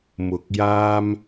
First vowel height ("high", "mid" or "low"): high